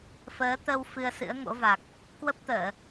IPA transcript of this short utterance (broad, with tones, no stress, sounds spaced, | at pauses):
f əː˨˦ t̪ ə˧ w f ɨ˧ ə̯ s ɨ̰˧˥ ə̯ ŋ o̰˧˥ v a˨˩ k̚ | k w ə˦˥ p̚ t̪ əː˧˩˨